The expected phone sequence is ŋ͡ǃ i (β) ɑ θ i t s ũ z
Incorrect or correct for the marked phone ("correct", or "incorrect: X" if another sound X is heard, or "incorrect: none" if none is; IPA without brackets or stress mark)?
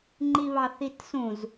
correct